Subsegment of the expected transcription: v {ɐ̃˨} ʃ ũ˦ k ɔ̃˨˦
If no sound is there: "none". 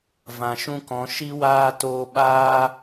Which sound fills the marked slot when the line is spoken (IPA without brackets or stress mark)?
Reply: ã˨